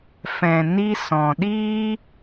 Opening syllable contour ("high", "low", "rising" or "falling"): low